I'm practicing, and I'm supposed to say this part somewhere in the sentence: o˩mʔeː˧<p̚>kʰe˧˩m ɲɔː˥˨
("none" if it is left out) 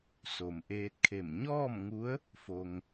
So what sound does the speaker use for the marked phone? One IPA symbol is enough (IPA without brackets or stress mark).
t̚